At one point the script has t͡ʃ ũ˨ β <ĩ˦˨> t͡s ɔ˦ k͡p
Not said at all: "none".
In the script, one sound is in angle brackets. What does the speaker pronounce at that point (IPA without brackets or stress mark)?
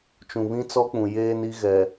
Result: ĩ˦